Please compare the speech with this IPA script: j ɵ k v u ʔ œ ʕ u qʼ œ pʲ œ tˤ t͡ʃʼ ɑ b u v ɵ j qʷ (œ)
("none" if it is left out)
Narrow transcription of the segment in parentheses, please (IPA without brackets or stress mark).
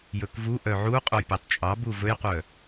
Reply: œ